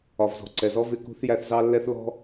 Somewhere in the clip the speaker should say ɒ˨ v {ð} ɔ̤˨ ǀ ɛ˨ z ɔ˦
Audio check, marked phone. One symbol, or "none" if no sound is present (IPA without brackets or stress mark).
z